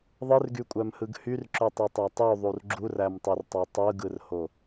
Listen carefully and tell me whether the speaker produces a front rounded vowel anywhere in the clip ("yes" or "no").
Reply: yes